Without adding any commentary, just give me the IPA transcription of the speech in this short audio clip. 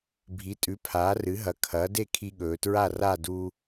bʱ i˩˥ tʼ ʉ˩˥ pʰ aː˩˥ r ɨ˩˥ ɦ ɐ˩˥ kʰ ɐː˩˥ d e˥˨ kʰ i˧ ɠ ɵː˩˧ t ɹ a˥˨ r a˥˨ d u˧

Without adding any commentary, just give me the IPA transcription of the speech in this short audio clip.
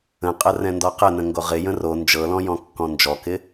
ə̃ qʼ ə r ɛ̃ n d ɔ q ə n ə̃ ŋ ɡ o ʁ ɪ j ə̃ r o n d͡ʒ ɤ l ɔ̃ j ɔ̃ kː ɔ̃ n d͡ʒ ɔ k ɪ

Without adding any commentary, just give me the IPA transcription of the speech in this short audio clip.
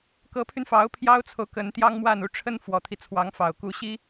k ɤ˧˥ pʰ y˧ n f ɑ˧˥ ʊ̯ pʰ j ɑ˥ ʊ̯ t͡sʰ o˨ ʊ̯ k ə˧˥ n t̪ j ɑ˥ ŋ m w a˥˧ n u˥˩ ʈ͡ʂʰ ə˥ n f w ɔ˨˩ t̪ʰ i˦ t͡sʰ w ɑ˧˥ ŋ f ɑ˨˩ ʊ̯ k u˧˥ ɕ i˥

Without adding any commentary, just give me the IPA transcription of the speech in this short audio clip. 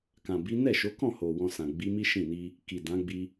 k ã˨ b i˨˦ n ɛ˦˨ ʃ o˨˦ k ɔ̃˦˨ h o˨ w ɔ̃˧ s ã˨ ɡ͡b i˨˦ m i˦ ʃ ĩ˦˨ n i˧ | k i˨ d ã˨˦ ɡ͡b i˧

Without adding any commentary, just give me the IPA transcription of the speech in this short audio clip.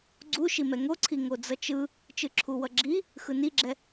ɡ͡ǀ u ʃ i m ɛ ŋ o ǀʰ i ŋ o d͡z ʌ t͡ʃ ɯ | t͡ʃ ɯ ǁʰ u w ʌ ɡ͡ǁ i | x ɯ n i ɡ͡ǁ ɛ

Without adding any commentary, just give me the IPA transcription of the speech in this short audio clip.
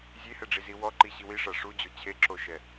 zʲ e h ɛ ɖ͡ʐ i z i w ɔ ǃ i ɕ i w i ʂ a ʂ u d͡ʑ o t͡ɕʰ e ǁ o ʃ ɛ

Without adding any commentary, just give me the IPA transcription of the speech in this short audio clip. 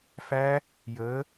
f æ˦˥ | j əː˩˧

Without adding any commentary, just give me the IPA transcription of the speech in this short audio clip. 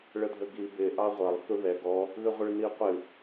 ɭ ə dʱ ə ɡ i b ɪ ʔ ɑ ʁʷ ɐ lˠ θ u ð ɛ ɡ ɔ | ð ɨ ʁʷ ə ɭ n i qʷ ɨ

